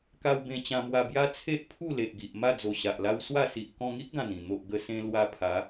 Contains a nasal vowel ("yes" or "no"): yes